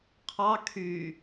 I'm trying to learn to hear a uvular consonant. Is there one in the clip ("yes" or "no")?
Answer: yes